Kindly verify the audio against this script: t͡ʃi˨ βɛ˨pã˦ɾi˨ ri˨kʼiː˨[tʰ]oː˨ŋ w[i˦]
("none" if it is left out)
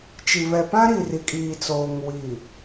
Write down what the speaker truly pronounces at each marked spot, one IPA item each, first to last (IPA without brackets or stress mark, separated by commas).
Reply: t͡s, i˨